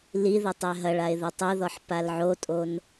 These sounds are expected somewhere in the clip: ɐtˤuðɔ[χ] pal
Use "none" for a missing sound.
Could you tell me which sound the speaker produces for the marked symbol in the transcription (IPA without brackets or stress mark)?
ħ